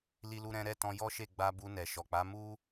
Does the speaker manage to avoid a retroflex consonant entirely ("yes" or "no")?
yes